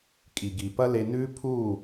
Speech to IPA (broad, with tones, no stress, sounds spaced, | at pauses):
kʼ i˨ ɡ i˨ p ɐ˦ l e˧ n ʉ˦ pʰ u˦˨